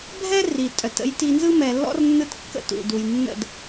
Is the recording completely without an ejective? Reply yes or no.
no